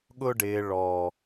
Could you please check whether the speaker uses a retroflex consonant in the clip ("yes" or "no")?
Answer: yes